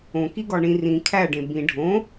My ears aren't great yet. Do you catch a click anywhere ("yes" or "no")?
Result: no